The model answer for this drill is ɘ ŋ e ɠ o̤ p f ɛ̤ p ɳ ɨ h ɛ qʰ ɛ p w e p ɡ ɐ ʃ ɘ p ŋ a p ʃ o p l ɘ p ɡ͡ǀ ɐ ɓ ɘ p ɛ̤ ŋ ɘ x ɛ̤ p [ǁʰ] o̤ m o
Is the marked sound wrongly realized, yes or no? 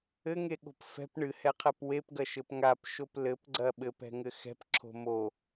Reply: no